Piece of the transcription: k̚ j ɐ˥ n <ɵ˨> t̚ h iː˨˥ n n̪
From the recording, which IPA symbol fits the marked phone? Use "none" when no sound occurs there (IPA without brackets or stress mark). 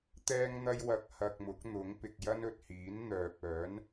ɵ˨